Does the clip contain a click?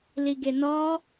no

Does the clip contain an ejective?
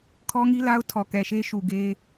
no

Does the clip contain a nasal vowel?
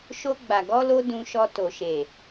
yes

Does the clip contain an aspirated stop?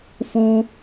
no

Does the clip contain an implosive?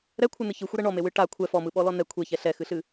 yes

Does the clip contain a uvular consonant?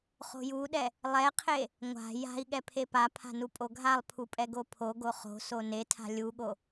yes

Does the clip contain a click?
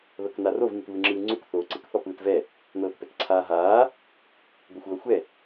yes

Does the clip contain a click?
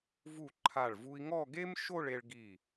yes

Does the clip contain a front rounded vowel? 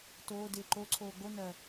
no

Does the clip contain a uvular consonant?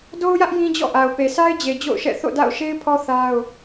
no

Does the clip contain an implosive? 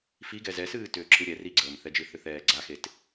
no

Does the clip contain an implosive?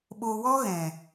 yes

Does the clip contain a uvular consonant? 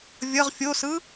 yes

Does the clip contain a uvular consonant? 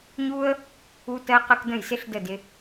yes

